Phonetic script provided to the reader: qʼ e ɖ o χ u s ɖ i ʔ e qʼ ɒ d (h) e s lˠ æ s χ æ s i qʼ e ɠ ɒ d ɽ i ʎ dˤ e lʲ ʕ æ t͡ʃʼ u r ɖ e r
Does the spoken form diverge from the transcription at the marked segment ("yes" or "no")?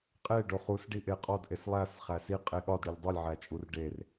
yes